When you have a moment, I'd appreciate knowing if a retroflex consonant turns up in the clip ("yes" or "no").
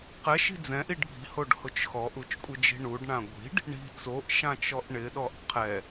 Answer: yes